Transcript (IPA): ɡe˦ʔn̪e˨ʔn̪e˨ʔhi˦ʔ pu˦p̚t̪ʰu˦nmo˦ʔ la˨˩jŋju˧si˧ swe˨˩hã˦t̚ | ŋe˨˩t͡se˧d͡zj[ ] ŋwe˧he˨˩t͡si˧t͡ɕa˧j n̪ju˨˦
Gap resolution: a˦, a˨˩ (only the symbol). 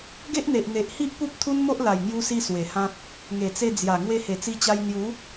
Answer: a˨˩